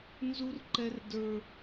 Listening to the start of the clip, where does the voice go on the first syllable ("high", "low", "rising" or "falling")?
high